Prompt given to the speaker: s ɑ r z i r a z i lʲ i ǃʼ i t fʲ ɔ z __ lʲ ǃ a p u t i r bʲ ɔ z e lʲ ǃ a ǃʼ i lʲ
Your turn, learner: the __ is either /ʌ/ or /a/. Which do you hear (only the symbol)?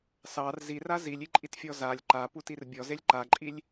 a